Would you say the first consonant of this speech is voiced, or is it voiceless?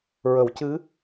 voiced